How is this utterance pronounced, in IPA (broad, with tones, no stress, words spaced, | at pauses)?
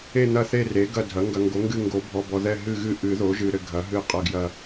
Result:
e˦˨n̪ɐ˦˨θe˦˨ re˩˥ɡɐ˦˨dʱɐ˩˥ ŋɡɐ˨ŋɡo˩˥ŋɡɨ˦˨ŋɡo˨˩˦ bʱɔ˨bɔ˨ðɛ˦˨ ɦɨ˦˨ɣɨ˦˨ ʔɨ˨˩˦ðo˩˥ʒɨ˨ ɾɘ˨ɡʱɐ˩˥ ɦɨ˦˨qʼɐ˦˨ɡjɐ˦˨